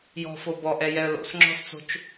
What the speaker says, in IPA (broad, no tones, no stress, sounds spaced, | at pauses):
j ɔ̤ f o b ɔ ʔ ɛ j ɛ ə̯ l o̰ s ŋ͡ǁ ɔ̤ s t͡s o̤ t͡ʃ